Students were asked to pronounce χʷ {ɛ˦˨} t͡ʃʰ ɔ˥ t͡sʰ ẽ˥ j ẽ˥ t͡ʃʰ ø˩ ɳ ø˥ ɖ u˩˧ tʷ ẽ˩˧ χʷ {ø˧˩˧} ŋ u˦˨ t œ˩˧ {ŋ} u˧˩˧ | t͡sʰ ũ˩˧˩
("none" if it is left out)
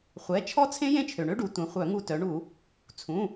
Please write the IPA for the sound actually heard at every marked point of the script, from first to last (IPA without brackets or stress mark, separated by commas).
ɛ˩˧˩, œ˧˩˧, ɳ